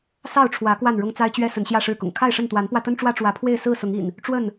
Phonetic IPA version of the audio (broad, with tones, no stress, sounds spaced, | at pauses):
s ɑ˥˨ ʊ̯ ʈ͡ʂʰ w ä˨˦ k w a˥˨ n ɻ ʊ˦ ŋ t͡s a˦ ɪ̯ t͡ɕ ɥ ɛ˦ s ə˨˦ n ɕ j ä˥˨ ʂ ɻ̩˥˨ k ʊ̰˨˩ ŋ kʰ a˥˨ ɪ̯ ʂ ə˥˨ n t̪ w a˨˦ n p w ä˧ t̪ ə˦ n ʈ͡ʂ w ä˦ ʈ͡ʂ w ä˨˦ pʰ w e˥˨ ɪ̯ s ɹ̩˥˨ s ʊ˨˦ ŋ ḭ˨˩ n | ʈ͡ʂ w ə˥˨ n